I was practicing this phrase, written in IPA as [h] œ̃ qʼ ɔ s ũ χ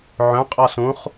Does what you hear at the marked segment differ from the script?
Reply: yes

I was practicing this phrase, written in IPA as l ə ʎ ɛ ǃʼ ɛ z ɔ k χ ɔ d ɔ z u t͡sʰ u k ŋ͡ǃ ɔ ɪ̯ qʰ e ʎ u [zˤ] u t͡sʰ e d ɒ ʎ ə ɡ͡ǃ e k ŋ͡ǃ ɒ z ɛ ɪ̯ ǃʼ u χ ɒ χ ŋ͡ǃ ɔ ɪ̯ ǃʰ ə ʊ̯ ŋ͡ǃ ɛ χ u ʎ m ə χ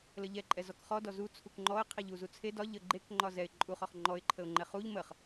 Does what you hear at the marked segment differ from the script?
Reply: yes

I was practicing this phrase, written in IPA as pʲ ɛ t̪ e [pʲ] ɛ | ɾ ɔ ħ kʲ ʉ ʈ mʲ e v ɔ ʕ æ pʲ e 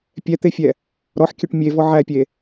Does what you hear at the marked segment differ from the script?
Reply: yes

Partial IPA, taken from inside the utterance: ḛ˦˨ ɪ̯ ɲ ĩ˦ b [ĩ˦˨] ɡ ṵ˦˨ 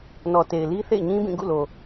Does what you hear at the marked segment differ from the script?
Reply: no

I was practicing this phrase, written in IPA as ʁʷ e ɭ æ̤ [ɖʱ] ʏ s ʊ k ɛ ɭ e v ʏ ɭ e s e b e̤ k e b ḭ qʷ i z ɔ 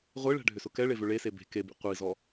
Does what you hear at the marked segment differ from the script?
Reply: no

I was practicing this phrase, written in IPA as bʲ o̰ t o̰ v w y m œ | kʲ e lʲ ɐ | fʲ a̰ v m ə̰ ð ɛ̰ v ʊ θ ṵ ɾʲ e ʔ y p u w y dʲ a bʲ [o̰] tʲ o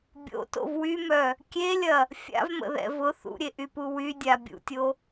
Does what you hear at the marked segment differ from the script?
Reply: yes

